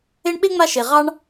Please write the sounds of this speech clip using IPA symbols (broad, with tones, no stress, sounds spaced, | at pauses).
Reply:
e˥ ɳ ɓ e˥ ŋ͡m a˦ ʃ e˨ ʁ ɑ˥ ɳ